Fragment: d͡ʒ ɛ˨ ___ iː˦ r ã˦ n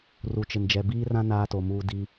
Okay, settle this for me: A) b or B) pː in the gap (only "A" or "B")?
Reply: A